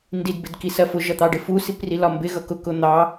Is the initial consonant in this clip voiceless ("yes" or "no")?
no